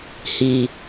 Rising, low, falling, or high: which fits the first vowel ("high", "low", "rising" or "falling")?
low